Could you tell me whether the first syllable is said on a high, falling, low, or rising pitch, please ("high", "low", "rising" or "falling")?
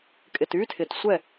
low